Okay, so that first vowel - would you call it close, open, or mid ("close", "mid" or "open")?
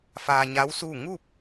open